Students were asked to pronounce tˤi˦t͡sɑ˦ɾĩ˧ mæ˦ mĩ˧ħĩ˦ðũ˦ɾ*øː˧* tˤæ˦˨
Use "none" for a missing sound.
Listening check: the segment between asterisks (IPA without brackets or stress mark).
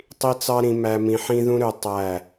ø˧